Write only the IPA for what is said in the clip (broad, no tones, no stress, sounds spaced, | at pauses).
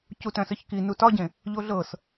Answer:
c u t œ̃ s ə ç k i n u t ɒ ɟ ẽ | ʎ o ɮ ɤ s